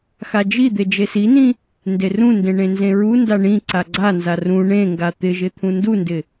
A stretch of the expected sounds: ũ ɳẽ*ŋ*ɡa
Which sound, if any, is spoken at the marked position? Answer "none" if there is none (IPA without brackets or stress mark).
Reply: ŋ